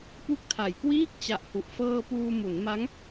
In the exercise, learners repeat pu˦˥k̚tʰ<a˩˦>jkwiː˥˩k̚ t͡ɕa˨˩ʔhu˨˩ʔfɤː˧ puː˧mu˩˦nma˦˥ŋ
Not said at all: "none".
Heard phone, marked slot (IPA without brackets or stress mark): a˩˦